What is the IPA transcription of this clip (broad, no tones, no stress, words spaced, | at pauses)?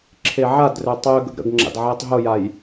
ǁʰeʕadrø tˤø ɡə̰ɡɾə̰ɡŋ͡ǁa̰d ʕetˤɦʊjaj